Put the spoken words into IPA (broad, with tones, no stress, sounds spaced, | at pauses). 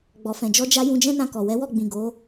ɡ͡b ɔ˨ f ɛ̃˨ d͡ʒ ɔ˧ d͡ʒ a˧ j ũ˧ d͡ʒ ɛ̃˦ n ã˧ k ɔ˨ w ɛ˨˦ w ɔ˦˨ ɡ͡b ĩ˨ ɡ o˨˦